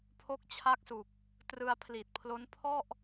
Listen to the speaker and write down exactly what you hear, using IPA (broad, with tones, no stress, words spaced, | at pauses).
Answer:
pʰo˦˥k̚t͡ɕʰa˦˥k̚su˨˩k̚ | trɯ˧a̯pʰli˨˩t̚pʰlo˦˥n pʰɔ˥˩ʔ